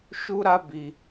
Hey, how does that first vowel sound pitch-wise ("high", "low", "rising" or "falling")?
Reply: high